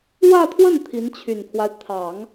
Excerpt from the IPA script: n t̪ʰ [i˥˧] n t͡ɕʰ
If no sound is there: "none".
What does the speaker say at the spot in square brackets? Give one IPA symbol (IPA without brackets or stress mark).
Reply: i˧˥